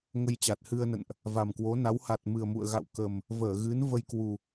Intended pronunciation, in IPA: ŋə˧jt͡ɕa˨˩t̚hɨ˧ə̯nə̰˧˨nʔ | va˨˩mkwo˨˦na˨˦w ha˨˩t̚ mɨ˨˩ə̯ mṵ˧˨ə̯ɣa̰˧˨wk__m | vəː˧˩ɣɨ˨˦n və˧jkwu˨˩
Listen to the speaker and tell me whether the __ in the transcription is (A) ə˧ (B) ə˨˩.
B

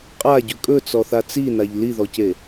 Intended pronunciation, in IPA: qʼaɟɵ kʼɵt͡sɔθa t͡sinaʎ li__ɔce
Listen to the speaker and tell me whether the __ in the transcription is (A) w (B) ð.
B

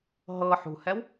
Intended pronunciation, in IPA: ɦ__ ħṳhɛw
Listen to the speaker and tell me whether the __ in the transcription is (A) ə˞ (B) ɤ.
B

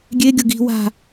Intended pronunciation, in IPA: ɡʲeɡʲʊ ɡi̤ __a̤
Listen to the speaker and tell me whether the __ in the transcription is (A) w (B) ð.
A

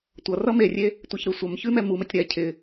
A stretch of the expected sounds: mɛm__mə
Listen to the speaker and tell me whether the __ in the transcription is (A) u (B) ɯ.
A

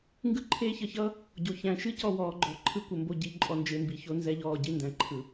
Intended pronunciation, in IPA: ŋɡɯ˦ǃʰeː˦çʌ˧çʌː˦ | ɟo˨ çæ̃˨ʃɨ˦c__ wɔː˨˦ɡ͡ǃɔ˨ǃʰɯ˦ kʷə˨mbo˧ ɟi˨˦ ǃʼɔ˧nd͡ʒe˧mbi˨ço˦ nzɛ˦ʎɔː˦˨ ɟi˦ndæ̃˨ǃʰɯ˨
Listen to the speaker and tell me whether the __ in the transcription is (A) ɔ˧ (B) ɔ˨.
A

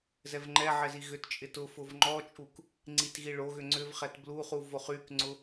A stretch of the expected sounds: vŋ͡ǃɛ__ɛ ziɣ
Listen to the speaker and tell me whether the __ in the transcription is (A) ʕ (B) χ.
A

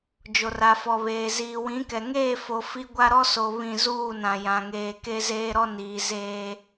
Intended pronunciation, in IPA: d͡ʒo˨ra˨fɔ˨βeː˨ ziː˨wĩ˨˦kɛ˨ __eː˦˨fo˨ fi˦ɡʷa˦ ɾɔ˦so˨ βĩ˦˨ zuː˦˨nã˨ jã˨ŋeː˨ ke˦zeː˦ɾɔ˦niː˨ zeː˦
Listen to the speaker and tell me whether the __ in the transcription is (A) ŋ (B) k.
A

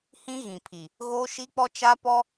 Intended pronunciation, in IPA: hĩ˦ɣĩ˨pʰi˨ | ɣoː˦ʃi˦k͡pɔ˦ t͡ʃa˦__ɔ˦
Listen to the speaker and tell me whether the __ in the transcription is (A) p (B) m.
A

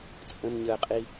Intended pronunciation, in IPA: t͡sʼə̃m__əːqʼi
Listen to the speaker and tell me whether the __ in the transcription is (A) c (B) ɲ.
B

